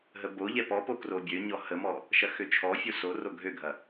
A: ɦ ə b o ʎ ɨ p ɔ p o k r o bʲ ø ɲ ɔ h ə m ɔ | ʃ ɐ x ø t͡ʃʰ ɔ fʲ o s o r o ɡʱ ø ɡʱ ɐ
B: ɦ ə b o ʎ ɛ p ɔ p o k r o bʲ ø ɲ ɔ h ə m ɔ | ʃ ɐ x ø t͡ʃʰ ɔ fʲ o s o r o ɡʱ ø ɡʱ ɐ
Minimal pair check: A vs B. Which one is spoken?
B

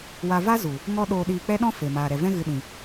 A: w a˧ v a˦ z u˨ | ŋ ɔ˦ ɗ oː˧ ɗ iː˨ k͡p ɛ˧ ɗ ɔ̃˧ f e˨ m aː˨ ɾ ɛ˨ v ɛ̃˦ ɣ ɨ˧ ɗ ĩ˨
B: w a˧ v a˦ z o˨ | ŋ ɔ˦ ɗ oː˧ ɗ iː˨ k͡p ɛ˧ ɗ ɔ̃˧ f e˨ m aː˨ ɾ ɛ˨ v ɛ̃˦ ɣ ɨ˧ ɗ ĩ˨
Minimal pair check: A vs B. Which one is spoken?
A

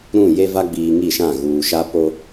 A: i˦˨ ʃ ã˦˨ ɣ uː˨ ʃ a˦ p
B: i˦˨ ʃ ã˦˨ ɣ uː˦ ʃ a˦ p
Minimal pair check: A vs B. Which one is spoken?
A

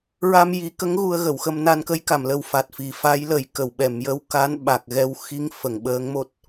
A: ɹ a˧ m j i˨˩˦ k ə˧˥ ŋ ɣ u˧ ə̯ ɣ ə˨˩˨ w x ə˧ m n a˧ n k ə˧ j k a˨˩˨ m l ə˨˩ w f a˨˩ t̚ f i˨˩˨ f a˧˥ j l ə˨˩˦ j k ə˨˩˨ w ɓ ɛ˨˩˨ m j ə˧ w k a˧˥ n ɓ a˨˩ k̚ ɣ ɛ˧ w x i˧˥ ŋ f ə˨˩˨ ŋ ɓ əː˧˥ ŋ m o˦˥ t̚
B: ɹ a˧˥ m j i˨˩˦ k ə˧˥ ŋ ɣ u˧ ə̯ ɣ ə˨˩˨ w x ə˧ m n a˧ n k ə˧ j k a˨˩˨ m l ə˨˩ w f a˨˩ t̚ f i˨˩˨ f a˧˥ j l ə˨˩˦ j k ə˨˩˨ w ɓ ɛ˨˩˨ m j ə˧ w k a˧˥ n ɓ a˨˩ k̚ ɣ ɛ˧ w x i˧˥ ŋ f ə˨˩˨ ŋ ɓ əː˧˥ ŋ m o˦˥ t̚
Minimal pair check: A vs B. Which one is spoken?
A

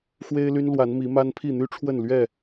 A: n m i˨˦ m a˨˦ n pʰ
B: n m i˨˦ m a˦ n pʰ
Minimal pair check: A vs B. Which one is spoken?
B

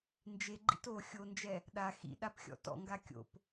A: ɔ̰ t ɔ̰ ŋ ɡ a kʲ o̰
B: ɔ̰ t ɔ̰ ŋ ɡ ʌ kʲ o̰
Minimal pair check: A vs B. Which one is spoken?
A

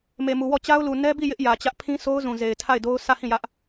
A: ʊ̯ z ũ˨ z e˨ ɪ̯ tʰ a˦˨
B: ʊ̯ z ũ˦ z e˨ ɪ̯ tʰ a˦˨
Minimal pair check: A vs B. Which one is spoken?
A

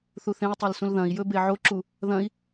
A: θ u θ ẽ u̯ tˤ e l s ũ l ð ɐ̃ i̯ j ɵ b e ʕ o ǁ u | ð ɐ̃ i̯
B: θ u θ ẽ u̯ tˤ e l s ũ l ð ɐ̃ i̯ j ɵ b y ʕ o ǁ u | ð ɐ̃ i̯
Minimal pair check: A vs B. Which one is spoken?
A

